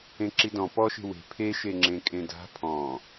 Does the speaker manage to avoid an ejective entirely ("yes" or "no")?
no